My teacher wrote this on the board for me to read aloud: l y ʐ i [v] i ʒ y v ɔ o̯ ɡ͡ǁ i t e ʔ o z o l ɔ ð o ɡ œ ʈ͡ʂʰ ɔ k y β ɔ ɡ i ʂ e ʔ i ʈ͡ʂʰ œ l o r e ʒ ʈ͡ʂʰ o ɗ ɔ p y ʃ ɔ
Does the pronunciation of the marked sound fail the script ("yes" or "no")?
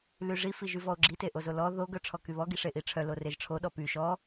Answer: yes